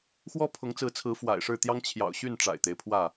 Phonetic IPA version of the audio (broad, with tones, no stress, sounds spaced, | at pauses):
x w ɔ˦ pʰ ʊ˨˦ ŋ t͡s ɹ̩˨˦ t͡sʰ ɹ̩˨˦ f w a̰˨˩ ɪ̯ ʂ ɻ̩˥˨ t̪ j ɑ˦ ŋ t͡ɕʰ j ɑ̰˨˩ ʊ̯ ɕ y˥˨ n ʈ͡ʂ a̰˨˩ ɪ̯ t̪ e˦ ɪ̯ pʰ w ä˥˨